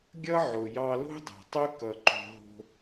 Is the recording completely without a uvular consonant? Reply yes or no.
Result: yes